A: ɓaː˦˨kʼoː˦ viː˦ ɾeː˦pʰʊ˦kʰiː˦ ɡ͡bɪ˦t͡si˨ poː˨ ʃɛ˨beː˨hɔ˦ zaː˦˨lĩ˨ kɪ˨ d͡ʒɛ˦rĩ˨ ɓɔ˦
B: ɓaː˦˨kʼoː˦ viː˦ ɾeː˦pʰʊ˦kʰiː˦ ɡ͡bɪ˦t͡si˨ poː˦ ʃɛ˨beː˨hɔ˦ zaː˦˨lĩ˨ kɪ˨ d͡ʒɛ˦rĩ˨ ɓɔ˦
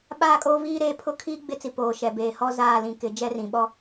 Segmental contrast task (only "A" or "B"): A